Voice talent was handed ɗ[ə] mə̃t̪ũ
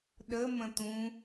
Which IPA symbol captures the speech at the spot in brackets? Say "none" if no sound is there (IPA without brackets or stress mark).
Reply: ə